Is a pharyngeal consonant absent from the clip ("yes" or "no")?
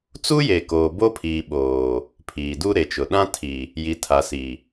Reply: yes